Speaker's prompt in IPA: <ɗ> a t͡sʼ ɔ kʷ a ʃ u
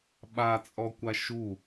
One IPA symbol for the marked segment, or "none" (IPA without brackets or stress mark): ɓ